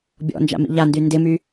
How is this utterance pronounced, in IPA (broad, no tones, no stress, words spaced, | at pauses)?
bʲɔ̰nd͡ʒa̰ mḭʎandy ndɪmy